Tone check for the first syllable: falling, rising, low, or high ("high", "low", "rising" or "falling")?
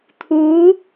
rising